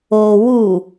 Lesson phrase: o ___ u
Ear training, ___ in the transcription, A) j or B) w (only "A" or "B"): B